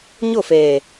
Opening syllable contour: falling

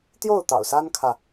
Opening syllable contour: falling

